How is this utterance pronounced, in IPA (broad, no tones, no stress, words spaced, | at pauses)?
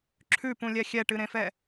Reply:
ǁʰʉpũlʲɛ xʲɛʈɨɾẽfɛ